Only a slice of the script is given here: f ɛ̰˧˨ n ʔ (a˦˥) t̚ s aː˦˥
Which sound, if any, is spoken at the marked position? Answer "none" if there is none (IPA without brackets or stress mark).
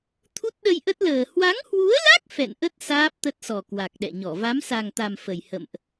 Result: ə˦˥